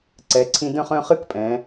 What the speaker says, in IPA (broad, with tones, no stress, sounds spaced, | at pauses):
ǀ ɛ˩˧ ǀʰ ĩ˧ d œ̃˥˧ χ œ̃˥˧ χ ɨ˥˧ k pʼ ɛ̃˩˧